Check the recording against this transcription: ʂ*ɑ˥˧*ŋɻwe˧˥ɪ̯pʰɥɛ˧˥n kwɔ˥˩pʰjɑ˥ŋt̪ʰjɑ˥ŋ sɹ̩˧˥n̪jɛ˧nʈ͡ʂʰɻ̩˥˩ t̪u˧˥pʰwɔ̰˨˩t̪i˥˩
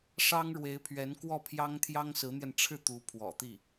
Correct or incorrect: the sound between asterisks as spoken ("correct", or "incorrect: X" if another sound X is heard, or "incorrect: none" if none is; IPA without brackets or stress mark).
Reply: incorrect: ɑ˥